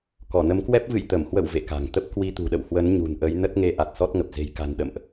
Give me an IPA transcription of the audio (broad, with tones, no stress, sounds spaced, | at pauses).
k ɔ˧˩ n ə˨˦ m k w ɛ˦˥ p̚ v ɨ̰˧˨ j t̪ ə˧˩ m h w ə̰˧˨ w v ḛ˧˨ k a̤˨˩ ŋ t̪ ə˦˥ p̚ k w i˧ t̪ ṳ˨˩ ɗ ə̰˧˨ w h w ə˨˦ n ɲ ṳ˨˩ n ʔ ə˨˦ j n ə˦˥ t̚ ŋ e˧ ʔ a˨˩ t̚ s ɔ˦˥ t̚ ŋ ə˨˩ p̚ z e̤˨˩ j k a̤˨˩ n ɗ ə̰˧˨ m ʔ